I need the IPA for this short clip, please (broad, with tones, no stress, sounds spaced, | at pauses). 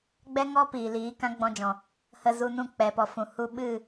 ɡ͡b ɛ˦ ŋ ɔ˦ p iː˨ l iː˨˦ k ã˦ ɡ͡b ɔ̃˧ d͡ʒ ɔ̃˨ | h ə˧ z u˧ n ũ˦˨ k͡p ɛ˨ p ɔ˨ f ũ˨ h u˧ ɓ ɨ˦˨